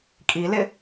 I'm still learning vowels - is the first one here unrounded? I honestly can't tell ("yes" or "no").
yes